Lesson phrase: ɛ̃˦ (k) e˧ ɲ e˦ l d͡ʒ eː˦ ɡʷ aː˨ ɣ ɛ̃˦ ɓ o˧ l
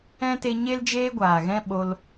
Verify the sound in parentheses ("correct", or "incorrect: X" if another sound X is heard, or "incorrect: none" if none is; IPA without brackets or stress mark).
incorrect: t